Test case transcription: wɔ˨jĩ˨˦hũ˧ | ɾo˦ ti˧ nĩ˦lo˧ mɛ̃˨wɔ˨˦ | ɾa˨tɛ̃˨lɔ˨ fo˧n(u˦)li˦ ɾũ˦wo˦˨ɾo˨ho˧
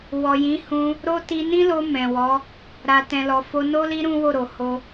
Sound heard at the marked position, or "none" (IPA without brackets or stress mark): o˦